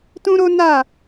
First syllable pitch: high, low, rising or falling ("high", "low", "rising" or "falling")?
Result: high